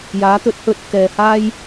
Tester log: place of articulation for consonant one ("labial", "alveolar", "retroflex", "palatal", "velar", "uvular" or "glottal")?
palatal